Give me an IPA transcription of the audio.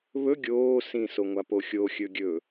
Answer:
β ɵ ɡʲ oː s ĩ s o ŋʷ a p o xʲ o xʲ ɵ ɡʲ ɵ

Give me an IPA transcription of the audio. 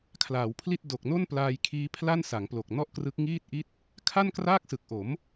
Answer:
kʰ l aː˩˦ w pʰ l i˥˩ t̚ d o˨˩ k̚ n o˥˩ n p l aː˧ j kʰ iː˦˥ pʰ l a˥˩ n s a˩˦ ŋ p l o˨˩ k̚ n ɔ˥˩ ʔ k r ɯ˦˥ k̚ ŋ iː˥˩ t̚ ʔ i˥˩ t̚ | kʰ a˥˩ n k r aː˥˩ k̚ s ɯ˨˩ k̚ ʔ o˩˦ m

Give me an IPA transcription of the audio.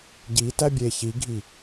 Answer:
ɟ i t æ bʲ e ç i ɡʱ i

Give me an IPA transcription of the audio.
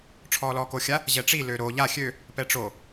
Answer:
ʈ͡ʂʰ ɔː l ɔː k o xʲ a | ʑ ɛ ʈ͡ʂ i l ø ɾ o ʎ a xʲ ø | p ɛ ʈ͡ʂ o

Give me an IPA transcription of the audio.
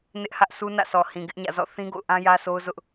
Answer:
n ɪ˦ ʔ h ä˦ ʔ sʰ u˦ n ä̰˦˨ sʰ ɔ˨ h ĩ˨ ɡ ɪ˦ ʔ ɲ ä̰˦˨ z ɔ̰˦˨ θ ĩ˦ ɡ o̰˦˨ ʊ̯ ʔ ã˦ j ä˦ s o˦ ʊ̯ z ʊ˦ ʔ

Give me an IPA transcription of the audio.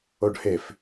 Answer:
o ɖ h e f

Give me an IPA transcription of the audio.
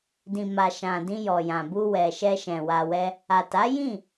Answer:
d ĩ˨ m a˨ ʃ ã˨ d ĩ˧ j ɔ˨ j ã˨ b u˧ w ɛ˨ ʃ ɛ˧ ʃ ɛ̃˨ w a˧ w ɛ˦ | a˨ t a˨˦ j ĩ˦˨

